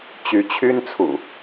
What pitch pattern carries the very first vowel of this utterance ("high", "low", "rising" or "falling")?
rising